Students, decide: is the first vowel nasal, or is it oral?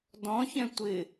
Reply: nasal